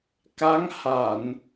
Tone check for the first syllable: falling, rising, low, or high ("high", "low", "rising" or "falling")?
rising